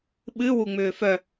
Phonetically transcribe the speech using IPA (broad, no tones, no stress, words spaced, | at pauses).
ɓɨ wuŋ͡mʏːfœ